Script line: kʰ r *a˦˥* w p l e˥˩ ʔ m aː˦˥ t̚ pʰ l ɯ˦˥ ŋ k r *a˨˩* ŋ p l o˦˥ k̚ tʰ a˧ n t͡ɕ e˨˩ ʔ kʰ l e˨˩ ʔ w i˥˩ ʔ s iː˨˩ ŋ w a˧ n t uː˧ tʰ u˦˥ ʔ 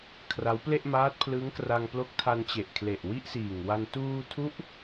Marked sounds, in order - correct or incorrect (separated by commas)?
correct, incorrect